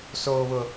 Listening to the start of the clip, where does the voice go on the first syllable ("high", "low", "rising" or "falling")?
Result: high